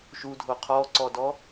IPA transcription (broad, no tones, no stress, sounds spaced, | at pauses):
ʃ u dʱ o qʰ ɔ ǀ ɔ d ɔ